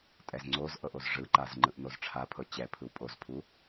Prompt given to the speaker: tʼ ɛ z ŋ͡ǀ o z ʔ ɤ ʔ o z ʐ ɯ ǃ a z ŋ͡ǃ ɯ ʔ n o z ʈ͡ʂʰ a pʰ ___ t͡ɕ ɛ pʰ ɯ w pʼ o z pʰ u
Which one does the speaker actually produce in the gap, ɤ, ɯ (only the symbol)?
ɤ